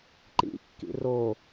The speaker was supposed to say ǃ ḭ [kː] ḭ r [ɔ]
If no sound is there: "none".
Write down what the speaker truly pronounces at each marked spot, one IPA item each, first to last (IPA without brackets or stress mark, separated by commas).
kː, o